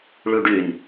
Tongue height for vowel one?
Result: high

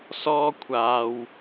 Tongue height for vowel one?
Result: mid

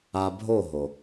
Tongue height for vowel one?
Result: low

